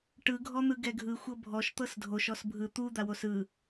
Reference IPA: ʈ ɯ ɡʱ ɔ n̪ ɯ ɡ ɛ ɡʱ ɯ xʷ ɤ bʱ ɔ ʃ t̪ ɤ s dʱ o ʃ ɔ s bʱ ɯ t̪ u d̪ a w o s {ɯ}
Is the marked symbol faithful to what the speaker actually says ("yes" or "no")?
yes